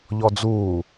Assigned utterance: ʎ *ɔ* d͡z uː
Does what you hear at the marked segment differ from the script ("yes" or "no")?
no